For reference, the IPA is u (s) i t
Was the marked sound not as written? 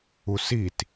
no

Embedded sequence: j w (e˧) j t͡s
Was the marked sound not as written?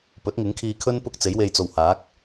no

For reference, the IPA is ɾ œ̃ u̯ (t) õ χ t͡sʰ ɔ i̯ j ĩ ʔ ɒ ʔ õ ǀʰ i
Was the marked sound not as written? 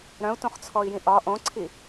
no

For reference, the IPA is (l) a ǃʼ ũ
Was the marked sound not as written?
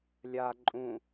yes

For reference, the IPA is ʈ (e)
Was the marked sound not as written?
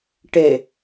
no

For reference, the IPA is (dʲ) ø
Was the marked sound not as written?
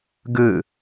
yes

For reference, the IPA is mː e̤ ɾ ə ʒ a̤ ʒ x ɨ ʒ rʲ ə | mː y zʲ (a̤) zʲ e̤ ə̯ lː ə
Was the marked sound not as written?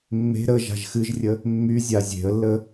yes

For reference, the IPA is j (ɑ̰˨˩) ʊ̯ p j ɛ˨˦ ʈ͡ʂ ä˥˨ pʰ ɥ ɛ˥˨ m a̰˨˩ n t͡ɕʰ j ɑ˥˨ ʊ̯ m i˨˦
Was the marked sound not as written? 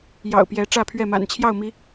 no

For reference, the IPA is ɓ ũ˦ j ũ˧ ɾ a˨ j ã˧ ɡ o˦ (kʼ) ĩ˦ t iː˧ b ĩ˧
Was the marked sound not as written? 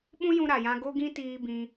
yes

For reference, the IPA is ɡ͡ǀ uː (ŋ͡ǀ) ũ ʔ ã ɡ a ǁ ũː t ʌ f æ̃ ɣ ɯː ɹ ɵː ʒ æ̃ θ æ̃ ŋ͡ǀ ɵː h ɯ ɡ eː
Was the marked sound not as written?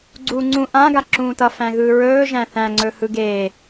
no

